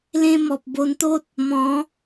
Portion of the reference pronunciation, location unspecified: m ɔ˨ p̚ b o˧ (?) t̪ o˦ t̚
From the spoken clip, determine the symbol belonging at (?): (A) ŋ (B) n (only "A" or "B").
B